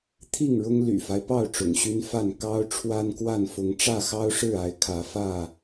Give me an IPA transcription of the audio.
t̪ʰi˥˨ŋɻʊ˦ŋ ly̰˨˩fa˦ɪ̯pɑ˥˨ʊ̯ ʈ͡ʂʊ̰˨˩ŋɕy˦nfa˥˨n kɑ˦ʊ̯ ʈ͡ʂʰwa˦nkwa˥˨nfʊ˨˦ŋ ʈ͡ʂä˥˨xɑ˦ʊ̯ʂɻ̩˥˨a˨˦ɪ̯ kʰä˨˦fä˥˨

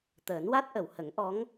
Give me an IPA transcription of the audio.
t̪əː˨˩˦nwa˦˥t̚ʔə˨˩˨w hə˨˩˦ŋʔɔ˧˥ŋ

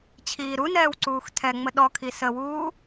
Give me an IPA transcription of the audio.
t͡ɕʰiːɾunɛːw ǀuːxtʰɛŋ͡mə ɗɔkʰi səwuː

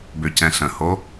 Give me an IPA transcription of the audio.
bøcɛ̃ɬə̃ho

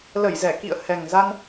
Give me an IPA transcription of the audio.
lə˧˩jzɛ˧˩kḭ˧˨ə̯ hɛ˨˩ŋza˧n

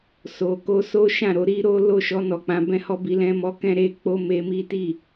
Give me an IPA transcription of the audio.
so˨ko˧ so˦ʃã˦˨ɾo˧ɾi˦ ɾo˦ lo˦˨ʃɔ˧ nɔ˨k͡pã˨˦bɛ̃˦hɔ˦ bi˧lɛ̃˧mɔ˧ kɛ̃˦ɾe˦k͡po˦ me˧mi˦ti˦˨

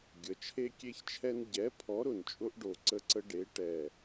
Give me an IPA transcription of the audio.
ɡʲə˩˧t͡ʃʰe˦kʲe˦çt͡ʃʰɛ˦n ɟɛ˨˥ pʰɔ˨˥ɾʊ˨˩n t͡ʃʼʊ˦ʔɖo˨˩ ǀə˦ǀə˦ɖe˨˥ ʈɛ˨˩

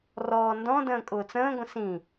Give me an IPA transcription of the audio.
rɔːndɔ̃də̃ː kʼʊːt͡sə̃ːɡʷə̃ sĩ

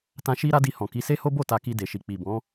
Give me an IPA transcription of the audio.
tã˧ ʃi˦ɾa˦ di˧hɔ̃˨ ki˨˦se˦ho˦ bo˦˨ta˧ki˧ de˨ʃi˨ k͡pi˨bɔ̃˨˦

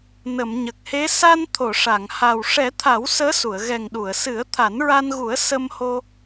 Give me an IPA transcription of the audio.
nə˨˩˨mɲə˨˩k̚he˧˥ sa˧n t̪ʰo˨˩˨ʂa˨˩˨ŋha˨˩w ʂɛ˨˩˦t̪ʰa˨˩˦w səː˧˥su˨˩˨ə̯ ɣɛ˨˩ŋɗu˨˩˨ə̯sɨ˨˩˦ə̯ t̪ʰa˨˩˦nɹa˧nɣu˨˩˦ə̯ sə˧mho˧

